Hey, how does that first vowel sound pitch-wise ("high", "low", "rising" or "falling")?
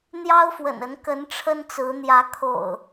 high